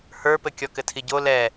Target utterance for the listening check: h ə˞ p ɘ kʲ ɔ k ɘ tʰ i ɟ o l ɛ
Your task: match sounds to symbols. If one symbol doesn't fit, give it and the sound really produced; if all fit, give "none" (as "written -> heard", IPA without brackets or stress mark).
none